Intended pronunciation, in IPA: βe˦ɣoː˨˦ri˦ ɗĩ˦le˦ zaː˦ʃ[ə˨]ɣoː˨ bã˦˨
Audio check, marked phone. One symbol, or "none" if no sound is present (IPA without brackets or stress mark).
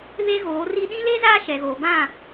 ɛ˨